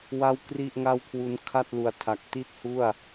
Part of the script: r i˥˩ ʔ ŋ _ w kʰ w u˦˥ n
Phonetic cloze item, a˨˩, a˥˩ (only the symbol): a˥˩